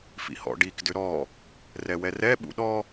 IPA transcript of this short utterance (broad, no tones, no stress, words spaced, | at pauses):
fḭhɔ̰ɖik dʏɾɔ | rɛwɛrɛ ɓṵɗɔ